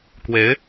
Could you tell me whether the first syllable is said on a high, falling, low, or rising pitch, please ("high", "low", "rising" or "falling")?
rising